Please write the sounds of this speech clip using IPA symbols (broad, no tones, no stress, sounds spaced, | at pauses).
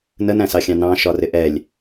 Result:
n ə n æ̃ s ɑ xʲ ɑ̃ n ɑ̃ ʃ ɒ r ɪ ʔ ɛ lʲ